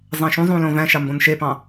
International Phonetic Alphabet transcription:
zˤæ̃ʃũzˤũ lõvæ̃ʃɑ mbõnʃepɑ̃

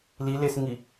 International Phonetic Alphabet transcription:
lilesŋi

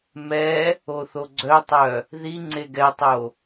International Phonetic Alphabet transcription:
mɛ | oθoɡ͡ǀœtˤœ | ði ŋ͡ǀeɡɛtˤo

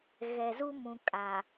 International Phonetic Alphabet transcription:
ɣɛ˨zu˦mũ˨ kʼa˨

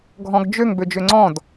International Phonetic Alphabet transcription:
ɡʱɔ̃ɡd͡ʒøŋ bød͡ʒøŋ͡ǀɔ̃d

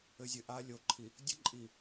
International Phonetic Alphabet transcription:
ɘ˨zʲɘ˨ ʔa˦lʲo˨˦ǃʰi˨ | dʲɘ˦ ǃʼi˨

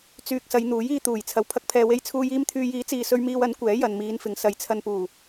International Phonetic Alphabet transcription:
t͡syː˨k̚ sɐ˨˧jn̪uː˨˥jiː˧ t̪uː˨˩j t͡sʰɐ˨˩w pʰɐ˧k̚pʰɛː˨we˧jt͡sʰuː˧j iː˧mt̪ʰyː˨jiː˨˥ t͡siː˨sɵ˧ɥ miː˧wɐ˨˥n kʷɛː˨˥jɐ˨nmiː˨˧nfɪ˨ŋ sɐ˨˧jt͡sʰɐ˧npuː˨˩

